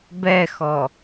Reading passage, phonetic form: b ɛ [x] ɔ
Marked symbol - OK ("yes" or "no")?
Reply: yes